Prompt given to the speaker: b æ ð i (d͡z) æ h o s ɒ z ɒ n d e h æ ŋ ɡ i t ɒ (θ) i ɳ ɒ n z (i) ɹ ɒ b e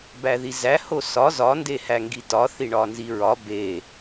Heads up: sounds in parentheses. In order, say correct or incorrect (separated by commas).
incorrect, correct, correct